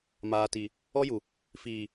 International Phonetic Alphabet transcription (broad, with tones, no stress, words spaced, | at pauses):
maː˨ti˨ | ɔ˦ju˨ | fiː˨